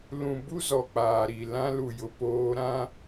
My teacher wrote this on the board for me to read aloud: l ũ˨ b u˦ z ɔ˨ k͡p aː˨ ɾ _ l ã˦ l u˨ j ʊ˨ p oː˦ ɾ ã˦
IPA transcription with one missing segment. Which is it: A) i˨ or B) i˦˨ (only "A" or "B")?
A